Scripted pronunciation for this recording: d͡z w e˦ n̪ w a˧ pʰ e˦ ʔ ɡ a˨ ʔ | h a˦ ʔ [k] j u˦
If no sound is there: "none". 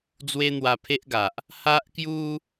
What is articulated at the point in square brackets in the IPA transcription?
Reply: k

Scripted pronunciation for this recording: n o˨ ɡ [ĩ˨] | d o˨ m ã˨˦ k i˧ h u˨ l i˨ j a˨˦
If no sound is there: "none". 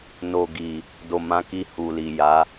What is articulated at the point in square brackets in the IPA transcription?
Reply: i˨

